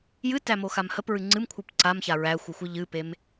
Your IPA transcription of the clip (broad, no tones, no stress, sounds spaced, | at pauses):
j ɨ t æ m o x a m h ə p ɹ ɨ ŋ͡ǀ ɨ m kʷʰ ɨ p ǀ a m ç a ɹ æ xʷ ɨ xʷ ɨ ʎ ɨ p e m